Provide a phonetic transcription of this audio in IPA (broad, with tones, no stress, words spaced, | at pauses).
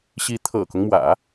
ɕi˧˥ t̪ʰɤ̰˨˩kʊ˦ŋmwä̰˨˩˦